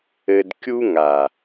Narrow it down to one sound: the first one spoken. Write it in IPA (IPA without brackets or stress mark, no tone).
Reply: ɘ